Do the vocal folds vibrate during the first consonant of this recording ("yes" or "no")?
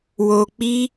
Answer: yes